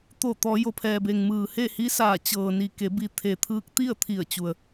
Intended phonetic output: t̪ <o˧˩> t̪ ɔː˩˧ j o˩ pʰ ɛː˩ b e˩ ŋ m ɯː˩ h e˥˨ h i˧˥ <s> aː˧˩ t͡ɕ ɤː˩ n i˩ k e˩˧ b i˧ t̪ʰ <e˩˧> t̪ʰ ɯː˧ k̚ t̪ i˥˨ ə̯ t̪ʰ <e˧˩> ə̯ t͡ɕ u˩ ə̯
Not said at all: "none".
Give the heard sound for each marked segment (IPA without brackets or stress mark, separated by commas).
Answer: o˧˩, s, e˩, i˧˩